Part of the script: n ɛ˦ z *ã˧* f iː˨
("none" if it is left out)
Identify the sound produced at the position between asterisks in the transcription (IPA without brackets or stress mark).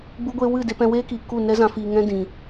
ã˧